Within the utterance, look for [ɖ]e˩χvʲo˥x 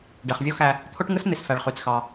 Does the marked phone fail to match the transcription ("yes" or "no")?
no